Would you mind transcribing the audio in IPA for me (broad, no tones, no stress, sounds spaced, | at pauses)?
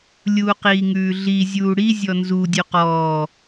lʲ uː q iː ŋ ʉː ɮ i zʲ uː ɽ i zʲ ɔ n z u dʲ ʉ q ɔː